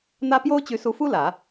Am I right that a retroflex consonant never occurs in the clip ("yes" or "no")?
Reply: yes